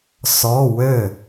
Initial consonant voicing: voiceless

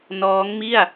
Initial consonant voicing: voiced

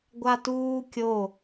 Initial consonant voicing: voiced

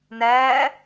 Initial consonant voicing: voiced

